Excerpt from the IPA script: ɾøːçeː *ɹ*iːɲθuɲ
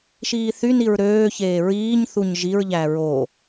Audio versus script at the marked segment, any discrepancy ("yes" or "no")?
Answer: no